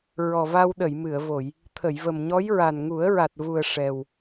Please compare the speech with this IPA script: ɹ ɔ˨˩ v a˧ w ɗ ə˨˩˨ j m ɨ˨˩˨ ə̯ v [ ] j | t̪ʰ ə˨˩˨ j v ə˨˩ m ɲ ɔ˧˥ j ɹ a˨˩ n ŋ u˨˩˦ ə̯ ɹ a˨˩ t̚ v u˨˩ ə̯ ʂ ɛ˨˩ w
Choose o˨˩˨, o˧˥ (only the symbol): o˨˩˨